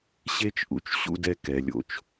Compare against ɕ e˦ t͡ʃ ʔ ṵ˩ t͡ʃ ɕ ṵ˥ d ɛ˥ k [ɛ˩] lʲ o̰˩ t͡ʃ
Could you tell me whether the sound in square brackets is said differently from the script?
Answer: no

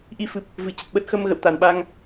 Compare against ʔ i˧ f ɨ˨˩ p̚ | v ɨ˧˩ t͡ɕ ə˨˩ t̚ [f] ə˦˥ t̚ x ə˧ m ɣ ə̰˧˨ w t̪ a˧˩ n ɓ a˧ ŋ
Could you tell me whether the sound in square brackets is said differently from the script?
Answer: yes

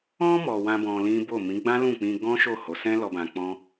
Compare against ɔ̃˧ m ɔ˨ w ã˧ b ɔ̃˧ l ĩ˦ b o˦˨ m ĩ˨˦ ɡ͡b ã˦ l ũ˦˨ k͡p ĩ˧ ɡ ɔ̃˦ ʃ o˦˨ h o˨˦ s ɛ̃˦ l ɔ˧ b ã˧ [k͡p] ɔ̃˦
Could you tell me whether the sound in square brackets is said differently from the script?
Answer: no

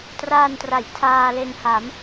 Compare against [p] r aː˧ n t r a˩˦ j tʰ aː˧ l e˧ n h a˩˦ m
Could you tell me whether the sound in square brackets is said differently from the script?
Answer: yes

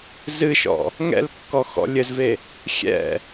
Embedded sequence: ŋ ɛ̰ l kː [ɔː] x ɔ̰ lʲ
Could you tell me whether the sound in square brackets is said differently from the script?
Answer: yes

